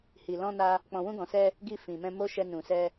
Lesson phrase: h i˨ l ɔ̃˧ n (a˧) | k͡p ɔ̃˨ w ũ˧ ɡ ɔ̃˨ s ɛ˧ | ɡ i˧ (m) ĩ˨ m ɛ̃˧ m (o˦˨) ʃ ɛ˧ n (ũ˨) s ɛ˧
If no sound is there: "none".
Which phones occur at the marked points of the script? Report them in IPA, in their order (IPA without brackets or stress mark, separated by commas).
a˧, f, o˦, ũ˨